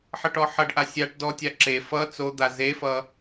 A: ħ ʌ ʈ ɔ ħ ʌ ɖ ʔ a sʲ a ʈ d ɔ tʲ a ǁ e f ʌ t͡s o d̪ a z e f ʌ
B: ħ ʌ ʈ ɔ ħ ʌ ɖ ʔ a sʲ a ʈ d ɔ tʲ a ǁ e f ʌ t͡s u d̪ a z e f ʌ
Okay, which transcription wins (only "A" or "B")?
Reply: A